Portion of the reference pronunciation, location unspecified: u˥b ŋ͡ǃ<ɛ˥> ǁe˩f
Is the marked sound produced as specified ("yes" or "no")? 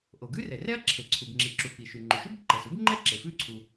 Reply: yes